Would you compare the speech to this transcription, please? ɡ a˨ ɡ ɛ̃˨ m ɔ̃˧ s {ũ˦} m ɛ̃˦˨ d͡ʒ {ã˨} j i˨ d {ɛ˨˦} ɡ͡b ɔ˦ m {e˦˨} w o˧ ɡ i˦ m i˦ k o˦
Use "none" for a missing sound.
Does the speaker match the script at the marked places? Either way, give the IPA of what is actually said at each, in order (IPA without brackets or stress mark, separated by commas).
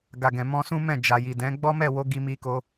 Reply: ũ˦, a˨, ɛ̃˨˦, ɛ˦˨